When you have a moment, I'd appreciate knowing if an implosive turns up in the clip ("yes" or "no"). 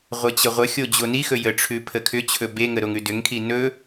no